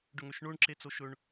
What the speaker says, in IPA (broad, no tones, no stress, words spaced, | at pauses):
ɖɵŋøʃɳoɳ ǁet͡soʃɵɳ